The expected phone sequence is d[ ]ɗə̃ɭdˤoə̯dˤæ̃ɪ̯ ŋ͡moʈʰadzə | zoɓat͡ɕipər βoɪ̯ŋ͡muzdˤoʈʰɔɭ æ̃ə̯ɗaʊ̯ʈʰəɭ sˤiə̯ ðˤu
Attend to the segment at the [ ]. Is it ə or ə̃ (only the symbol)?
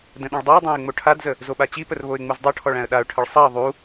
ə̃